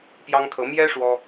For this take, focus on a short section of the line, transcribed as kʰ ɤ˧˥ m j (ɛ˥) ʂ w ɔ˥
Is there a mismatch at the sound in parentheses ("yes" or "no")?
no